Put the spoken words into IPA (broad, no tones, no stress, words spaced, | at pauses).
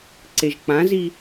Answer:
ǀeʒk͡pãzi